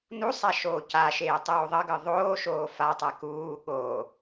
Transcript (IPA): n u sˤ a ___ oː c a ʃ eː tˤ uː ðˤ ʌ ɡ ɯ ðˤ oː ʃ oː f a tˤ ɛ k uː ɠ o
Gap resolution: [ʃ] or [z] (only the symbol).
ʃ